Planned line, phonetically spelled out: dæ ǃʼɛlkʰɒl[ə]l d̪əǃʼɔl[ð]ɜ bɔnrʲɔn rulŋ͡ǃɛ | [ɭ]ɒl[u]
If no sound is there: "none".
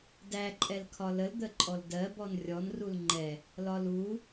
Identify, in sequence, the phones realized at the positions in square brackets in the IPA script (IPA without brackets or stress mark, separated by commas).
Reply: ə, d, l, u